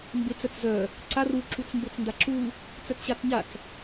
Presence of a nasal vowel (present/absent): absent